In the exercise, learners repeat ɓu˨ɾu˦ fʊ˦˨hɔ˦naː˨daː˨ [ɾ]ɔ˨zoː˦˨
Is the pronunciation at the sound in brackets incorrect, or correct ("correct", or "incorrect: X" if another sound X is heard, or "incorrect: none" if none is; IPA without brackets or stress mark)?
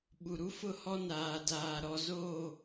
correct